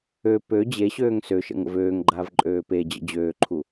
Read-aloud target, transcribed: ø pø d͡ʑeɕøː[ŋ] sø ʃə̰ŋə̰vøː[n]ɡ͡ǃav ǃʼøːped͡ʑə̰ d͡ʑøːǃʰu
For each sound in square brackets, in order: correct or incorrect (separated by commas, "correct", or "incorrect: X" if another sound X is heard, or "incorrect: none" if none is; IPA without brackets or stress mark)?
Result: correct, incorrect: ŋ